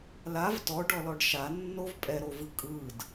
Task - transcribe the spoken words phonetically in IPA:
lav tɔɖɔlɔɖ ʃanːov pʼɛɾovɯ kʼɯd

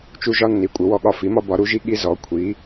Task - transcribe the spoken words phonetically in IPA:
t͡ʃu˦ʒɒ˦ nːi˩˥kʷʼɘ˩˥wɔ˦ɠɒ˦ fi˩˥mɒ˦ bɒ˩˥ɾu˩˥ʒi˦ ɠi˦zɔ˩˥kʷʰi˩˥

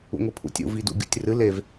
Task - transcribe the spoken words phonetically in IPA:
ṵŋʷipʰṵtʲṵ vidṵɡʲṵtʲrɨ lev

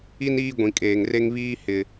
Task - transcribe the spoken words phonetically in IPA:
i˦n iː˦ ɡʷĩ˨kʼeː˨ŋre˦ŋβiː˦ hɪ˨

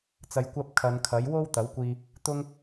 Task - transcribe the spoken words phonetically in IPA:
t͡sɐ˨jkʷɐ˧p̚ kʰɐ˨˧nkʰɐ˨˥j wo˥wt̪ɐ˨˥wkʷiː˧ | t̪ʊ˥ŋ

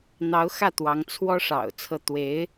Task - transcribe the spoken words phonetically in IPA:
n̪ɑ˧˥ʊ̯ xä˥˩t̪wɑ˧˥ŋ t͡sʰwɔ˥ʂɑ̰˨˩ʊ̯ t͡sʰɤ˥˩ t̪we˧˥ɪ̯

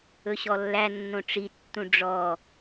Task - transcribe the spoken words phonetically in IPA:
ɵɕɔlːæ nːõʈ͡ʂi tːũɖ͡ʐɔ

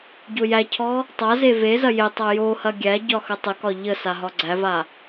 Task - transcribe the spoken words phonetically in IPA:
ɟojæcʰɔ | tˤa zevezɐ jetˤa johɐ ɡʲæɟɒ xətˤəkɒ ʎəsa ɦɒɡ͡ǀæva

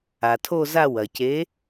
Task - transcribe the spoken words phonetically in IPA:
a˩tʰo˦˨za˦˨ wɐ˩ce˨˦

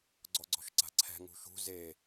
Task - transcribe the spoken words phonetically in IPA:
ɡ͡ǀɔɡ͡ǀɔ̤ʃǀa̤ǀʰɛ̤ ŋṳʃṳ ze

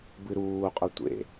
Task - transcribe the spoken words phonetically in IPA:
bɨɾuːqʼʊ tʷḛ

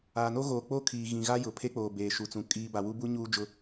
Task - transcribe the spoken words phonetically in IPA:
aː˨no˦ ɣoː˨k͡po˦kʰiː˨ ɣĩ˨ɣa˦ jʊ˨pʰe˦k͡poː˨ beː˨ʃu˨t͡sũ˨ kʼiː˨ ba˨wu˦bu˦ ɲuː˦d͡ʒʊ˦

